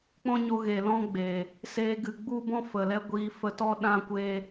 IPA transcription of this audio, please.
k͡p ɔ̃˦ ɲ o˧ ɣ e˨ l ɔ̃˦ ɡ͡b eː˨ | s eː˧ ɡ ɨ˨ ɡ͡b u˦ b ɔ̃˦ f ə˨ l ɛ˦ ɡʷ iː˧ f ə˧ t ɔ˦ ɗ ã˦ kʷ eː˦

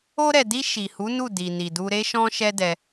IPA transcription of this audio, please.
o˧ ɾ ɛ˨ d i˧ ʃ i˨ h u˨˦ n u˦˨ d i˨ n i˨ d u˧ ɾ e˦ ʃ ɔ̃˦ ʃ ɛ˦ d ɛ˧

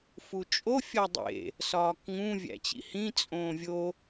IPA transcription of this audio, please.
f u t͡ʃʼ o fʲ ɒ dˤ ḛ | s ɒː k ŋ ũ vʲ æ̰ t͡ɕ ḭ h ĩ t͡sʼ õː vʲ o

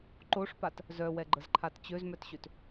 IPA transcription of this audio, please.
ǃ o ʂ p a t | z œ w ɛ ɡ͡ǃ ə z ǃʰ a t t͡ɕ ø z m œ t ɕ ø t

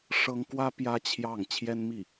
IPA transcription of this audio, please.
ʂ ɤ˥ ŋ k w ä˥ p j ä˥ t͡ɕʰ j ɑ˥˩ ŋ t͡ɕʰ j ɛ˥ n m i˥˩

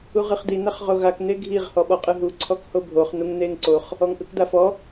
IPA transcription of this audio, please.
u ʁ ɯ χ d̪ i n̪ a χ ʁ o ɣ a k n̪ e ɡʱ i ʁ h ɔ ɓ ɔ qʼ ɯ ɦ u ǀʰ ɔ k h o bʱ o χ n̪ u ŋ n̪ e ŋ ǀ o χ | ɔ ŋ ʔ ɯ k d̪ a f ɔ

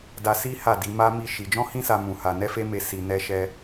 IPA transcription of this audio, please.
d a˧ s i˦ h a˦˨ d i˨˦ m a˦ m i˦˨ ʃ i˧ d͡ʒ ɔ̃˦ h ĩ˦ s a˧ m ũ˨ h a˨ n ɛ˧ f e˦ m e˧ s i˧ n ɛ˧ ʃ ɛ˧

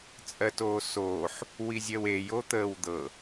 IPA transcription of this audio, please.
t͡sʼ ɜ t oː s oː ħ | w i zʲ ɜ w e j o t̪ əː w d̪ ɤ

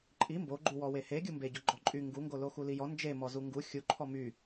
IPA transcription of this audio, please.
ǃʼ i m b o ɡ͡ǃ u w ɔ w e h e ɡʲ u m b e ɟ o ɡ͡ǃ ɔ ǃʼ y ŋ ɡ u ŋ ɡ o l o x u l i j ɔ n d͡ʒ e m ɔ z u ŋ ɡ u xʲ u ǃʰ ɔ m y

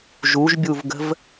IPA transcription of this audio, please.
ʒ u ʒ bʲ u v ɡ ə̤ v

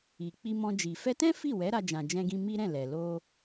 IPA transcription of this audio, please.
i˨ k͡p i˧ m ɔ̃˧ d͡ʒ i˨ f ɛ˧ t ɛ̃˦ f i˦˨ w ɛ˨˦ ɾ a˧ d͡ʒ ã˨ d͡ʒ ɛ̃˧ ɡ ĩ˧ m i˦ ɾ ɛ̃˦˨ l ɛ˨ l o˧

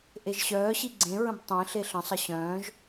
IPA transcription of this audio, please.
ʔ e ʒ ɕ œː ɕ i ɡ͡ǀ ẽ ɹ ə̃ b tˤ ẽ ɬ e ɬ ə̃ sˤ ə ɕ œ̃ː ʒ

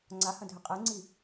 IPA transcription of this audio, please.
ŋ͡ǀ a h ɐ̃ dʱ ɘ qʼ ɛ ŋ͡ǀ i

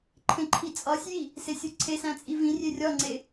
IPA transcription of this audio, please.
ǃʰ ẽ ǃʰ i t͡sʼ ɒ sʲ j i | s e sʲ u ǀʰ e s æ̃ t͡sʼ i v ĩ rʲ e rʲ ɒ ŋ͡ǀ e

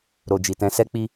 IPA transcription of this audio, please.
ɾ o˨ d͡ʒ i˨ t ɛ̃˧ s ɛ˦ k͡p i˦

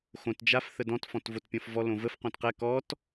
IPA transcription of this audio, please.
x õ t d͡ʒ a f θ ə d ɔ̃ t f ɔ̃ t v o t pʲ ɔ̃ f v ɔ l õ v ə f q õ t q ɛ k ɔ t

